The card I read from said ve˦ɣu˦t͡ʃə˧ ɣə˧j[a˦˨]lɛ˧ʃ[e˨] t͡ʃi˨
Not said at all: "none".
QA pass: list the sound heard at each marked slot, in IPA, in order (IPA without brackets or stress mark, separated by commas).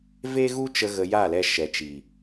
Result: a˦˨, ɛ˨